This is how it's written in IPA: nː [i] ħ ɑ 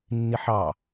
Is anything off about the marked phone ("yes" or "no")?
no